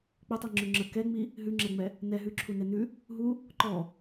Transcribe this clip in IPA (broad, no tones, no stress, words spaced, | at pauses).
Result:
k͡pətˤi ŋ͡ǁʉŋ͡ǁə kɛŋ͡mi | ɦʉŋ͡ǁɛŋ͡mɛ | nɛ ɦʉǁʰunɛ nʉ | ɦu | ǃɔ